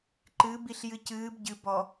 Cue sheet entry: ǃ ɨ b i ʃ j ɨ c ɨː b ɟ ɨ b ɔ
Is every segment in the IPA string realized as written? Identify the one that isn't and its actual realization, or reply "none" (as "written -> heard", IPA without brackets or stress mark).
ʃ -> ɬ